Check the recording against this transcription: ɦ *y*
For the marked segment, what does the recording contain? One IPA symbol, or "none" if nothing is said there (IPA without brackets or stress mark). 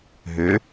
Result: ø